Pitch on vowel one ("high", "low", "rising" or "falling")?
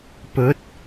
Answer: rising